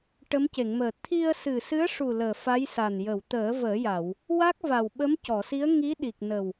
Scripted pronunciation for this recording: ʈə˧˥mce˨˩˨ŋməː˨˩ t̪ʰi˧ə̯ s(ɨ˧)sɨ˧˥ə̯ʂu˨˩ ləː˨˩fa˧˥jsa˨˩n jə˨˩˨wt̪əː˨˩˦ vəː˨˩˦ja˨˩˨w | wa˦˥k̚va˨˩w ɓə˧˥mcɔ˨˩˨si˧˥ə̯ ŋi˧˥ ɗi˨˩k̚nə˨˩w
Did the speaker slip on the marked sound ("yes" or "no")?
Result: yes